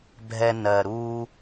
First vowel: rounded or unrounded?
unrounded